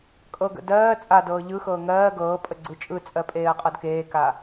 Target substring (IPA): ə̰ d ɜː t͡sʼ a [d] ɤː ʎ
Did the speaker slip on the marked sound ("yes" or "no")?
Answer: no